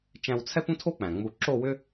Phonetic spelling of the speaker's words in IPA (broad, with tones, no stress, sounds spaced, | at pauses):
t͡ʃ æ̃˧ w t͡sʰ ɛ˥ p ũ˥ tʰ o˥ k͡p æ̃˩ ŋ͡m u˧ ǁ o˥˧ w ʏ˥